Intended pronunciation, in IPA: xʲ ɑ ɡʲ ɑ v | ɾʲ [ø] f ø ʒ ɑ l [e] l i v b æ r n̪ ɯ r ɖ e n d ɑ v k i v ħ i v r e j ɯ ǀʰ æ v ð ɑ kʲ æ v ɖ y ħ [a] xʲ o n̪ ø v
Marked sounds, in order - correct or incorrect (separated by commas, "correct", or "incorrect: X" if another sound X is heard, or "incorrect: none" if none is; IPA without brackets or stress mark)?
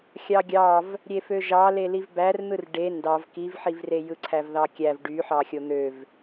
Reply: incorrect: e, correct, incorrect: ɑ